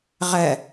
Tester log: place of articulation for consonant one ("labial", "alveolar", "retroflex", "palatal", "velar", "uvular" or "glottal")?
uvular